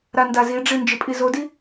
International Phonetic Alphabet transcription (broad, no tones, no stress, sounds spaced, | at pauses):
ɾ a n d a z i ɖ͡ʐ i n d͡ʒ ɪ pʼ i z o d i